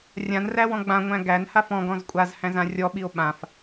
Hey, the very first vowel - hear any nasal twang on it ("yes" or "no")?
yes